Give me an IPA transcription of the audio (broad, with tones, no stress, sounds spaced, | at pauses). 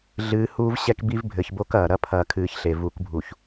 ɮ ɨː˨˦ h uː˦ v ɕ ɛ˦ k b i˦ v bʱ ɘ˨ ç b o˦ k ɐː˨ ɾ ɐ˦ pʰ ɐː˨ kʰ ɨː˨˦ ç ɬ e˨ v u˨˦ k bʱ u˨ ç